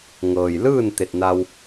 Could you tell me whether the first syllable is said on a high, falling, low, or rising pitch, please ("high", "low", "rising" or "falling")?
low